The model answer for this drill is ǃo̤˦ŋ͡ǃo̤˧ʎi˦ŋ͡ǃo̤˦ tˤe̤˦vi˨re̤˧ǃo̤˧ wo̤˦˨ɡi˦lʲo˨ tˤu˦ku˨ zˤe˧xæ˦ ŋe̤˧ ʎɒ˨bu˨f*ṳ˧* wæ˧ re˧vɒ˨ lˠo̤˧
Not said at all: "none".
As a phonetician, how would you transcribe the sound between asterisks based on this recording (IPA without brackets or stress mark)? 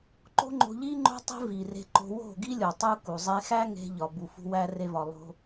ṳ˧